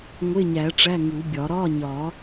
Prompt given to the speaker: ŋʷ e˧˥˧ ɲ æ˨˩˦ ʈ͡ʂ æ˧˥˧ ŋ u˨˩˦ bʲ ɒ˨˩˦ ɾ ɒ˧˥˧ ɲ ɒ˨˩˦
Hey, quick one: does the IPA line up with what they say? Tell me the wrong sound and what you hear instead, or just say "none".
none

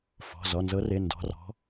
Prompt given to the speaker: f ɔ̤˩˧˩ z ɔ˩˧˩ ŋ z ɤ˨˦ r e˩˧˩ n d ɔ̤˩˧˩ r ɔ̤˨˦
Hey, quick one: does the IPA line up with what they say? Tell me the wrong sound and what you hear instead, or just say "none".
ŋ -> n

